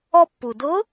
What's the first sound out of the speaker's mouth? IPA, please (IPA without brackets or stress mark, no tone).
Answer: ɔ